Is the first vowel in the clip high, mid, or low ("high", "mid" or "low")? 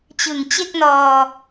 high